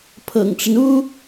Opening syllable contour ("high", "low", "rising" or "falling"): low